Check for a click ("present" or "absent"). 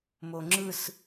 present